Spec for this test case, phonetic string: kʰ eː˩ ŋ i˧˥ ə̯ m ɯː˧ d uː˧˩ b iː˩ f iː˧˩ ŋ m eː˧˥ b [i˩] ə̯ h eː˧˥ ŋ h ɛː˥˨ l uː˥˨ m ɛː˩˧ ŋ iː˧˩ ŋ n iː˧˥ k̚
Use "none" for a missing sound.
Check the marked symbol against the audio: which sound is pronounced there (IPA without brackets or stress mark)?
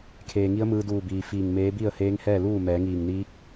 i˥˨